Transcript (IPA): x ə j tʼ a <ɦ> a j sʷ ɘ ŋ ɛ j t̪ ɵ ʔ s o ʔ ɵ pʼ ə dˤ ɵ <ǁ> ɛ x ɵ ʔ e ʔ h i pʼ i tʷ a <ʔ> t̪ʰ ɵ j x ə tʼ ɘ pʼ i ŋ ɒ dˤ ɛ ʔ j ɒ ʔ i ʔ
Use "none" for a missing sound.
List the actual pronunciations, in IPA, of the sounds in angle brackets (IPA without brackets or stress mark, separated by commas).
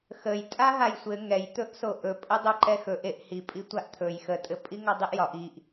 ɦ, ǃ, ʔ